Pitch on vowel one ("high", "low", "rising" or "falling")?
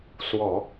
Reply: low